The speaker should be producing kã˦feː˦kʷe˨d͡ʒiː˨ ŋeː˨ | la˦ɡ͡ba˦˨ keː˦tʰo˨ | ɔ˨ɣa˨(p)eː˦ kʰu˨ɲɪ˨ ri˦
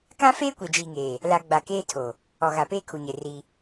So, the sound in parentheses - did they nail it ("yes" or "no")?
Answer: yes